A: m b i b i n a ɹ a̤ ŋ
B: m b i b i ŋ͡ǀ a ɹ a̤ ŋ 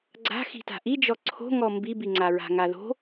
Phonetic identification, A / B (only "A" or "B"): B